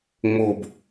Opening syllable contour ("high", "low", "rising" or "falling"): low